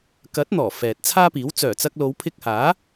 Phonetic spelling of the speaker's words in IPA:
k ɐ˨˥ t̚ n̪ ɔː˨˩ f ɛː˨ t̚ t͡sʰ aː˥ p iː˨˥ w t͡s œː˨˩ t͡s ɐ˧ k̚ l o˨˧ w pʰ ɪ˧ k̚ h aː˨˥

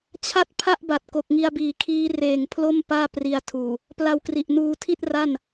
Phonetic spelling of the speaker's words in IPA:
t͡ɕʰ a˥˩ t̚ pʰ a˥˩ ʔ b a˨˩ t̚ k o˨˩ k̚ ŋ i˧ a̯ b iː˨˩ kʰ iː˦˥ r eː˨˩ ŋ pʰ l o˥˩ m p aː˥˩ p r i˧ a̯ tʰ uː˨˩ | p l a˧ w k r i˨˩ ʔ n uː˧ tʰ i˥˩ t̚ r a˥˩ n

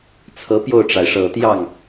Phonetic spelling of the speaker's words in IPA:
t͡sʰ ɤ˧˥ p j o˥˩ ʊ̯ ʈ͡ʂ a˩ ɪ̯ ʂ ɤ˨˩ t̪ j ɑ˥˩ ŋ

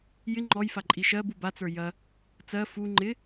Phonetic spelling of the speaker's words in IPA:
j ɪ ŋ͡ǃ ɔ j f a ǃʼ i ʃ ɜ b u b a t͡s ə˞ j ɐ | t͡s ɜ f u ŋ͡ǃ ɪ

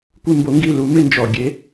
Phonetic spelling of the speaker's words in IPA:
kʷ ɪ˦˨ m b o˨˦ ŋ ɡ i˦˨ l u˨˦ m ɪ˦˨ n d͡ʒ ɔ˨˩ ɡʲ e˨˦

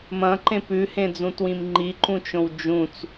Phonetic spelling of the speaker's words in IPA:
m ɐ̃ ǃ ẽ p ʉ h ẽ d͡z ũ t w ĩ m ŋ͡ǃ i ǃ ũ t͡ʃ õ w d͡ʒ ũ t͡s

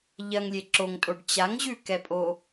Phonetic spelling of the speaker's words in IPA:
ʎ ɐ ŋ lʲ e ǁ o ŋ tʼ o ɖ t͡ɕ a ŋ ʑ ʉ k ɛ pʼ o

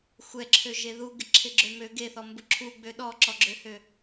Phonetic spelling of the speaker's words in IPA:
xʷ ɛ ǁʰ ø ʒ e ð u ɡ ɪ ǁʰ ɪ ɡ͡ǁ ø m ø ɡ e θ ɔ m b ʊ ǁʰ u ɡ͡b ø ɗ ɔ ǁ ɔ ɡ͡ǁ ø h ø

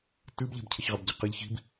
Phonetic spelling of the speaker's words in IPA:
t ɨ b ʎ ɛ̤ b cʰ ɘ ç ʁ ɘ b ɟ ɘ q ɘ ʎ ç i̤ b

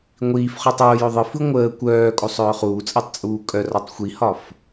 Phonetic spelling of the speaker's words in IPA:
ŋʷ iː f χ œ tˤ oː j ɵ ðˤ ɯ f ɯ ŋʷ əː kʷ œː kʼ o sˤ œː χ uː t͡sʼ əː tˤ t͡sʼ uː kʼ œ r ɒ tˤ xʷ i h ɒ f

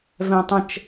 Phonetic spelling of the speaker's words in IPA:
v ɛ̃ tˤ ə̃ t͡ʃ

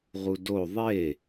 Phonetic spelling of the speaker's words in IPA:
ʁ u d o ðˤ e

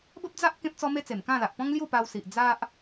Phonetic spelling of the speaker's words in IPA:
b ə˦ p̚ d͡z a˦ ʔ k ẽ˦ p̚ t͡s ɔ˦ m e˦ t͡s e˨˩ m k ã˥˧ l a˨ ʔ p ɔ̃˦ ŋ l j u˥˧ p a˧ w s i˨ ʔ d͡z a˦ ʔ

